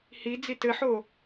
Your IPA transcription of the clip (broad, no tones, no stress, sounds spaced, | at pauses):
h i d͡z i t ɘ ħ o